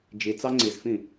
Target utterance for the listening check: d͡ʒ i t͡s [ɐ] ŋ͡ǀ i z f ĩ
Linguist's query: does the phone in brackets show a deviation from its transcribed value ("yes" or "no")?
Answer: yes